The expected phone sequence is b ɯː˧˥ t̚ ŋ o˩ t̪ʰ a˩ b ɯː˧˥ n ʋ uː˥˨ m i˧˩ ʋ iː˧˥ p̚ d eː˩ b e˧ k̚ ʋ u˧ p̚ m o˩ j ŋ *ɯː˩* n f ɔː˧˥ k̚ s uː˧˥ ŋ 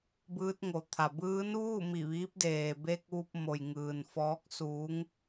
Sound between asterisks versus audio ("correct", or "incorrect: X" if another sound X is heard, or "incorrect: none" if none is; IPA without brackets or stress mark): correct